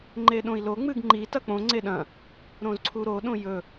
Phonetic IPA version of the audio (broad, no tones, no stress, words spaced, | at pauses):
ŋ͡ǃeɗõi̯lo ŋ͡mɨɡŋ͡ǃi tɐk͡põ ŋ͡ǀeɗɐ̃ | ɾõzǀʰuɾo ɗõjɵ